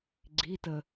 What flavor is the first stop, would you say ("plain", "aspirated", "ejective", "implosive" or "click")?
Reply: click